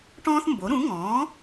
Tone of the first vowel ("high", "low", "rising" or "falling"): high